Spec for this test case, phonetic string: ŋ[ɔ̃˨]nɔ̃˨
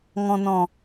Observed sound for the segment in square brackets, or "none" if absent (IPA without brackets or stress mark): ɔ̃˨